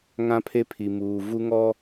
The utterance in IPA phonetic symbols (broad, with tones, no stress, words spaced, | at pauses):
ŋã˦pʰe˦pʰi˨ muː˨ vu˦ŋɔ˦